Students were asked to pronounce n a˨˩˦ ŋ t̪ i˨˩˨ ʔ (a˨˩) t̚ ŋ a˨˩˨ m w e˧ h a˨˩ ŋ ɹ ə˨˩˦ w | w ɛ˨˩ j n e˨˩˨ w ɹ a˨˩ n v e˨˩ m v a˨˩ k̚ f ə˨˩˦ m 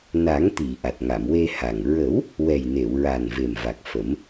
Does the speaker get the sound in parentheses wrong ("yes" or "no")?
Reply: no